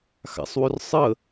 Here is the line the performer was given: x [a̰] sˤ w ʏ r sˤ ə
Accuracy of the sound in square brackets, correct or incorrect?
correct